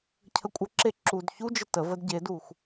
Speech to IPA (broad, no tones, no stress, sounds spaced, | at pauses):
cʰ ə kʷʼ ə ǁ e ǁ u d ç u d͡ʒ ə t ə v ə d ɟ e d u x